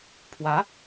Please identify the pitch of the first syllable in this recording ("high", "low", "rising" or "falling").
rising